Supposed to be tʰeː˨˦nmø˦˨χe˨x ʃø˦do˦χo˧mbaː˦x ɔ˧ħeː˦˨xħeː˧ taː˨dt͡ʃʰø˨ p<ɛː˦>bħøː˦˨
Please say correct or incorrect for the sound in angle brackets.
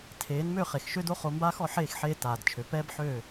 correct